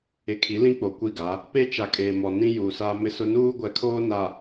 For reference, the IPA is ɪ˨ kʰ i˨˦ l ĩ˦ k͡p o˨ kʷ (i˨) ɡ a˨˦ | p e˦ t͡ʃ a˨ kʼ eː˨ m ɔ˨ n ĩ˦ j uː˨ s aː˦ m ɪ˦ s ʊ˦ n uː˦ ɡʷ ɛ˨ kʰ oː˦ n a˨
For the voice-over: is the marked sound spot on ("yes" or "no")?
no